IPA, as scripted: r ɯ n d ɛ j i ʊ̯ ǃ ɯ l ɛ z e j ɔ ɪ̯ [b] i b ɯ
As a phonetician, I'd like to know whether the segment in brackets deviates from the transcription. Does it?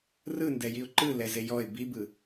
no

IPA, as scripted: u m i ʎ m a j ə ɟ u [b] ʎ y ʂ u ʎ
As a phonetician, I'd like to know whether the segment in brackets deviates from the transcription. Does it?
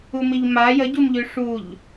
yes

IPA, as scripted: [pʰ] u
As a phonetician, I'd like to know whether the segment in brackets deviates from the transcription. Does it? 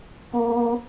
yes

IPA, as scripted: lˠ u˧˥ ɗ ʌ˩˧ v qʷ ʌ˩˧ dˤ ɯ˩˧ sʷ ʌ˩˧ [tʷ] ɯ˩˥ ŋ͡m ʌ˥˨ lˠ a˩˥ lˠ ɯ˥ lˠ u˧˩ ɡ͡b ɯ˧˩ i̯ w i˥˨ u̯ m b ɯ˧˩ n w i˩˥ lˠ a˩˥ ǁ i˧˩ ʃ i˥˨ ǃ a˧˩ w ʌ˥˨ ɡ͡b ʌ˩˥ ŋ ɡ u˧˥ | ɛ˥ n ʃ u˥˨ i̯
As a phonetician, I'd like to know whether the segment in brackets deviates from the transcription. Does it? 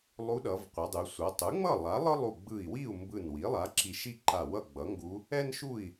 yes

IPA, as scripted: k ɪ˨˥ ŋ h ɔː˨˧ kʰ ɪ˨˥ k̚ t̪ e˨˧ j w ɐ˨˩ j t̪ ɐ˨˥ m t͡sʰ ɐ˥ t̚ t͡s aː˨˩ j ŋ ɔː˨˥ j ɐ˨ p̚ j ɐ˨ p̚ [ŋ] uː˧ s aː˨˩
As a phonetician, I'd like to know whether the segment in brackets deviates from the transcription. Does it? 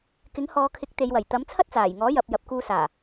yes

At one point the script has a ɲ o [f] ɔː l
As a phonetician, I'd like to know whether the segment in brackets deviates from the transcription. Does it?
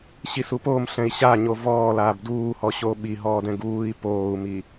yes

